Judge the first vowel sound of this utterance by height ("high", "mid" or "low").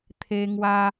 mid